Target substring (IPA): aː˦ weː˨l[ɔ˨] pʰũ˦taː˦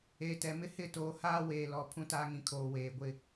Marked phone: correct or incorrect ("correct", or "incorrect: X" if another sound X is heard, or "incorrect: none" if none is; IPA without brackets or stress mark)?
correct